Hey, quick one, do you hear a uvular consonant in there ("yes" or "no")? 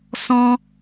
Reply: no